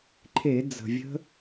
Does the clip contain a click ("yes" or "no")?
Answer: yes